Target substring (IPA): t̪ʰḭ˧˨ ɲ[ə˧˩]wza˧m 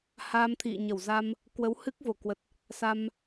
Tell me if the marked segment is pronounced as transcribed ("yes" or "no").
yes